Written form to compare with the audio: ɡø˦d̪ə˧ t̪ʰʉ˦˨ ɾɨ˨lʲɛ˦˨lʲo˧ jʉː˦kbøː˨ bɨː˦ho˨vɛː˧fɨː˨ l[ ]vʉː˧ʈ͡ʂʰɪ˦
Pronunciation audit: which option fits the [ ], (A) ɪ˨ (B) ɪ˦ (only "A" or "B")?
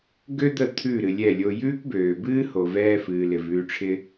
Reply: A